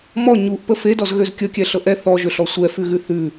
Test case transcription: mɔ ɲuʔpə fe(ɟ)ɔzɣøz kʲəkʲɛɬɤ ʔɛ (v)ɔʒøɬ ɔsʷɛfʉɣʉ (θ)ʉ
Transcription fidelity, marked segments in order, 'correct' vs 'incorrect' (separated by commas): incorrect, incorrect, correct